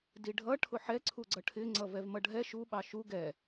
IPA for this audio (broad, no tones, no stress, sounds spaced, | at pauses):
d i ɖʱ ʌ ʈʰ ʊ ħ ɛ ǀʰ u ɡ͡ǀ ʌ ʈʰ ɪ ŋ͡ǀ ʌ v ɛ v m ʌ ɖʱ ɛ ʃ u ɓ ɑ ʃ u ɡ ɛ